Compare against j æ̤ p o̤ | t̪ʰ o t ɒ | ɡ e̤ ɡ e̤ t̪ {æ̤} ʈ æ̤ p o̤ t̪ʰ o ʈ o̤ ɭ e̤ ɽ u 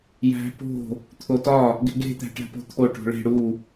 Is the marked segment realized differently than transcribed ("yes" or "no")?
no